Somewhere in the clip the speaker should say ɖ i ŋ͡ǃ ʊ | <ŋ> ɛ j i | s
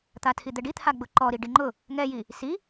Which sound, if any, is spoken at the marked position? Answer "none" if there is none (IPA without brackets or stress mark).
ŋ